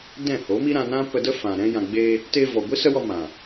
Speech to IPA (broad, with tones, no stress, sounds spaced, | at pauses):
d ɛ̃˦˨ h o˨˦ m i˦ ɾ ã˧ n ã˦ p ə˧ d ə˦ f ã˨ ɾ ɛ̃˧ j ã˨ ɡ͡b eː˧ | t eː˧ v ɔ˨ ɡʷ i˦ s ə˦ w ɔ˧ m ã˨